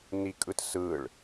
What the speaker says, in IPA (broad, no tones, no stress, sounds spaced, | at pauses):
n i kʼ ɯ t s ɯ ɭ